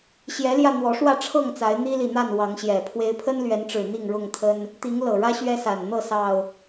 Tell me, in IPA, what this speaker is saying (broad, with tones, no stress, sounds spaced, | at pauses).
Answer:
ɕ j ɛ˨˦ l j ä˧ n̪ w ɔ˨˦ ʂ w ä˥˨ ʈ͡ʂʰ ɤ˥˨ ŋ t͡s a˨˦ ɪ̯ n̪ i˦ l i˨ n̪ a˥˨ n w ɑ˨˦ ŋ ɕ j ɛ˨˩ pʰ w e˦ ɪ̯ pʰ ə˦ n l ɥ ɛ˨˦ n ʈ͡ʂ ɻ̩˨˩ n̪ i˥˨ ŋ ɻ ʊ˥˨ ŋ t̪ʰ ə˦ n | t̪ i˨˦ ŋ l ɤ˨˩ ɻ ä˦ ɕ ɥ ɛ˦ s a˨˩ n n̪ ɤ˥˨ s ɑ˨˩ ʊ̯